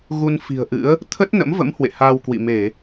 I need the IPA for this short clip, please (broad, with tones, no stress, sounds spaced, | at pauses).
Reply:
ɣ u˧ n f i̤˨˩ ə̯ ʔ ɨ̰˧˥ ə̯ | t̪ʰ ə˦˥ t̚ n ə̰˧˥ m v ə̰˧˥ m h w ḛ˧˨ h aː˧ w k w ḭ˧˨ m e˧˩˨